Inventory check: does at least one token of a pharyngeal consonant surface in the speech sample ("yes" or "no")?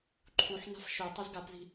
yes